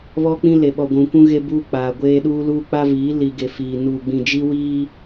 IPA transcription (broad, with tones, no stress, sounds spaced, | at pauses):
β ɔ˦ k͡p ĩ˦ l e˨ ɓ ɔ˨ ɡʷ ũ˨ kʷ ũ˦ ɣ e˦ b uː˦ k͡p aː˨ ɡʷ eː˦ ɗ uː˦ l uː˦ k͡p a˦ v iː˨˦ l i˨ ɡ e˨ f iː˨ n uː˨ ɡ͡b ĩ˨ d͡ʒ i˦ w iː˦